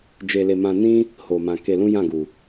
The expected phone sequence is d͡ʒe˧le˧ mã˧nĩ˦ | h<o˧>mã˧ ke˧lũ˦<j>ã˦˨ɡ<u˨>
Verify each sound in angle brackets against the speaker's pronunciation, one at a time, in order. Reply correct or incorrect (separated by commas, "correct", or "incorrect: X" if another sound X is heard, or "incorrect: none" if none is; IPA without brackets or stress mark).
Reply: correct, correct, correct